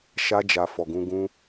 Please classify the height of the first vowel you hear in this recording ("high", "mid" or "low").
low